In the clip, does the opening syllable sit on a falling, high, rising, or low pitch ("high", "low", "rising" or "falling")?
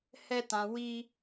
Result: high